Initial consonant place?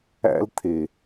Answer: alveolar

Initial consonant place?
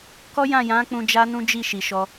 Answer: velar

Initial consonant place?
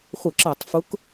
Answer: uvular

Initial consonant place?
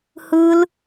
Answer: glottal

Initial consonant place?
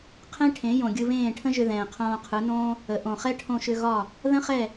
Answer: uvular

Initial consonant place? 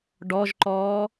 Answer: retroflex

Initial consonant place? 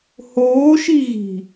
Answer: glottal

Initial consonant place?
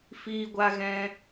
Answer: labial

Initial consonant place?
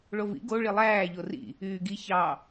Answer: retroflex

